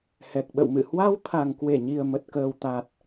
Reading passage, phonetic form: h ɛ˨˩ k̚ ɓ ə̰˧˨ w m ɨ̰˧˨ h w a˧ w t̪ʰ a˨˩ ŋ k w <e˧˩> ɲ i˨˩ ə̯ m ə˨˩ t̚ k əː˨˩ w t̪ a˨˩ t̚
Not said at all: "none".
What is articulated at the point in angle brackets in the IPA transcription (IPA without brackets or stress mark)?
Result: e˧˩